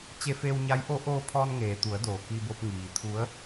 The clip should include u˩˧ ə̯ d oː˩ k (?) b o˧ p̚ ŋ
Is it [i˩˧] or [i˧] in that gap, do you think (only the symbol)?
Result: i˧